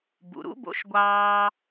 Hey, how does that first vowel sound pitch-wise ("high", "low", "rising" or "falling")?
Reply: low